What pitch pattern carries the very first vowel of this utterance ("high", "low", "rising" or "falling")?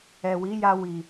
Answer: low